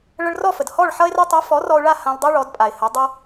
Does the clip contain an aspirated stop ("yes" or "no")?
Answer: no